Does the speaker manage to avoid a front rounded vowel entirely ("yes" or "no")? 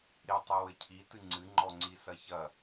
yes